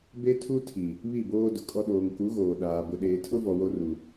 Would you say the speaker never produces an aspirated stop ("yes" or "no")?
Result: no